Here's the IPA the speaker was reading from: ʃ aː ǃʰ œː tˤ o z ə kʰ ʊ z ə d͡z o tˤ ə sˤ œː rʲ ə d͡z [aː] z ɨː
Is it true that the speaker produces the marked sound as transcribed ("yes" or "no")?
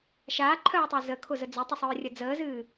no